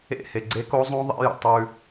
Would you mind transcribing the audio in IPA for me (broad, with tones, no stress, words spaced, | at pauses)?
ḛ˦˨he˨ɡ͡ǀe˦ ko˦zˤõ˦ ðˤḛ˦jə̰˨ tˤʉ˦